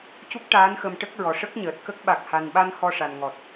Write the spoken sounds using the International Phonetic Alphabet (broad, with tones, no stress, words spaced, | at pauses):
cu˦˥k̚ʈaː˧˥nxə˧mʈə˦˥k̚ ɹɔ˨˩ʂə˦˥k̚ɲəː˨˩t̚kə˦˥k̚ ɓa˨˩k̚ha˨˩nɓa˧n hɔ˧ʂa˨˩nŋɔ˨˩t̚